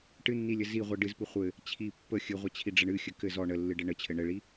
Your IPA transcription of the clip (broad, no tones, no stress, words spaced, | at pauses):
ʈɨnːilʲɘ ziʁʷi ɖɨzpɨ χʷɘ | t͡ɕʰi pːə xʲɨʁʷət͡ɕʰiɖ͡ʐəɳ ɨxʲɘ kɘz ɔ ɳəlːɨɖɘ ɳət͡ɕʰɘ ɳɘɭi